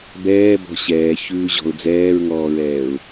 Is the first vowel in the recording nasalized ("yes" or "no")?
no